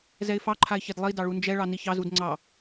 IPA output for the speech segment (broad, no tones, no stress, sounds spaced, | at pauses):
z ɛ ɪ̯ f ɑ ǃʰ a ɪ̯ ç ɛ d lˠ i d ɑ ɭ u n d͡ʒ ɛ ɭ ɑ n i ç ɑ z u d ŋ͡ǀ ɑ